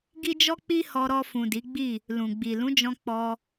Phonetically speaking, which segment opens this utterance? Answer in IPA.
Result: ɡ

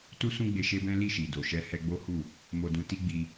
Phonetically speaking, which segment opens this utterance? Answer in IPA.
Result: t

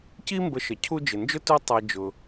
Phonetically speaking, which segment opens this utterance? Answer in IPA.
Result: c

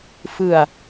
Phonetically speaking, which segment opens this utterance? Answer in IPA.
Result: f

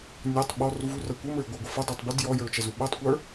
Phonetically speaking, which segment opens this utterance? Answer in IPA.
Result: nʲ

